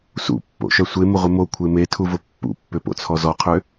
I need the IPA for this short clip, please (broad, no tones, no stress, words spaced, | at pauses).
sṵpːo̰ʃœ sʷemʊʁʷɪ mokʷʰe metʰuvʊ pːṵpːʏpo̰t͡sʰɔ zɔqʰʏ